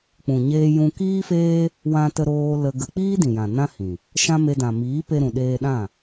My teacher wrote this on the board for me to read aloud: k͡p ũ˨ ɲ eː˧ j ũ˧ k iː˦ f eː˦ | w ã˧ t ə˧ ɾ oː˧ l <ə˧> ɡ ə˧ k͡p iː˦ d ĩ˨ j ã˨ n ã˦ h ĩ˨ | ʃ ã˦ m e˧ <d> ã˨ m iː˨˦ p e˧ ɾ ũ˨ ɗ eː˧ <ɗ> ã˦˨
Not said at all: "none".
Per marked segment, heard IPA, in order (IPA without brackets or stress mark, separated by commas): ə˧, d, ɗ